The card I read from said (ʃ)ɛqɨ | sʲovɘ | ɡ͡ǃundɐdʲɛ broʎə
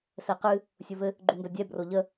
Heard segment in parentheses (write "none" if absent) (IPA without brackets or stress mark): s